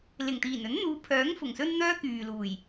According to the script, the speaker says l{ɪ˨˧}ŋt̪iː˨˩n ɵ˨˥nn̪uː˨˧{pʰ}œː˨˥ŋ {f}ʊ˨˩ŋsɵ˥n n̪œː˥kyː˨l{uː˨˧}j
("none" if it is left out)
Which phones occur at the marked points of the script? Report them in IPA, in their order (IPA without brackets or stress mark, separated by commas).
ɪ˨˩, pʰ, f, uː˨˩